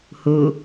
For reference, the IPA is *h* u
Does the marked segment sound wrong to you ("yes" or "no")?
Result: no